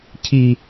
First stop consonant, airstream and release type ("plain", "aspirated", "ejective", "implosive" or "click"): aspirated